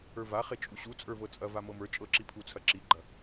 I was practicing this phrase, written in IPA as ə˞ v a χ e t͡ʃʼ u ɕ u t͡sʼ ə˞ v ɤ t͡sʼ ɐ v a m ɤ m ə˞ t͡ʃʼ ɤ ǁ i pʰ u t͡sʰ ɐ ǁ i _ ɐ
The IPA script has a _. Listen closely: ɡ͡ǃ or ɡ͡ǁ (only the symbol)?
ɡ͡ǃ